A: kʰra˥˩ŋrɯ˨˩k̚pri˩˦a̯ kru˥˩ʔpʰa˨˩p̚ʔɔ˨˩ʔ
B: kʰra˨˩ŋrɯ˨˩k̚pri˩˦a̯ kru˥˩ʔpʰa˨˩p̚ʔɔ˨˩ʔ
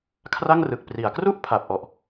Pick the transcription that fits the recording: A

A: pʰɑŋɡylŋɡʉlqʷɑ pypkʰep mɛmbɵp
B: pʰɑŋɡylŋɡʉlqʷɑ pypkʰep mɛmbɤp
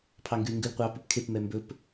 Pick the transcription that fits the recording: A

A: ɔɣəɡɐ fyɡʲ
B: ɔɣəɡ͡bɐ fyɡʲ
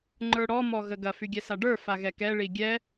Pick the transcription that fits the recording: A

